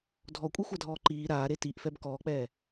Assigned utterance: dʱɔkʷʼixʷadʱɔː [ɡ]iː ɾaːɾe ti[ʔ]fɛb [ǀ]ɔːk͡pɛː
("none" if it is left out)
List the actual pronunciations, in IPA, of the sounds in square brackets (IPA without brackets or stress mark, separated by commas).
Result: ǃ, ʔ, k